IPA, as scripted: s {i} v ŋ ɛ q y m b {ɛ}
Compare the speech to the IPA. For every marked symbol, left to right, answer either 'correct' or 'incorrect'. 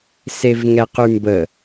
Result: incorrect: e, incorrect: ə

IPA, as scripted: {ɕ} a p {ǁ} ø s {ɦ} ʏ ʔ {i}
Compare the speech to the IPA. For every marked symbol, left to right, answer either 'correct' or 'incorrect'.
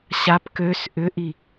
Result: correct, incorrect: k, incorrect: ʔ, correct

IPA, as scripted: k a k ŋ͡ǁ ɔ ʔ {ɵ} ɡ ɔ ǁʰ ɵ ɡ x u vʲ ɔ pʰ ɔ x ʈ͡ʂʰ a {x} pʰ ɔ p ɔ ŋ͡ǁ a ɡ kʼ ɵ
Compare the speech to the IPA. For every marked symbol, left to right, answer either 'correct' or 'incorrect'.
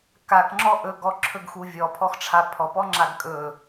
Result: correct, incorrect: none

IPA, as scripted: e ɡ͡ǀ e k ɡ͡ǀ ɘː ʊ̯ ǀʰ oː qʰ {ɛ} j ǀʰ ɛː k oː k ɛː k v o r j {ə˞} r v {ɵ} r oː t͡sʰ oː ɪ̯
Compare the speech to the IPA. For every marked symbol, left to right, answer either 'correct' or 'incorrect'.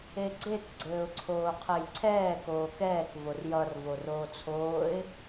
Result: incorrect: ɘ, incorrect: ʌ, incorrect: o

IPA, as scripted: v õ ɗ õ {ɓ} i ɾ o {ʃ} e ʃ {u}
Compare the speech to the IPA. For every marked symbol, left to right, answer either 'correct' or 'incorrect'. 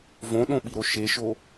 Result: correct, correct, incorrect: o

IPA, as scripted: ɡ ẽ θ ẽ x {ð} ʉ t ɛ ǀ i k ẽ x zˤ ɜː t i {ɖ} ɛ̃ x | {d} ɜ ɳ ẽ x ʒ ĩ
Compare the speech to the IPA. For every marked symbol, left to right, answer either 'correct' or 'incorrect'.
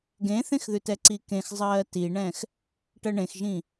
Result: correct, incorrect: ɳ, incorrect: ʈ

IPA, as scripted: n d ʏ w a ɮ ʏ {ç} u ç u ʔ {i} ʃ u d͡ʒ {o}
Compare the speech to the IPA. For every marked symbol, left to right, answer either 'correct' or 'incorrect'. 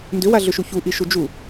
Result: incorrect: ʃ, correct, incorrect: u

